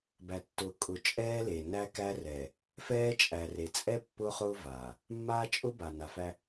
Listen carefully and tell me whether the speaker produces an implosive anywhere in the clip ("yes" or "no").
no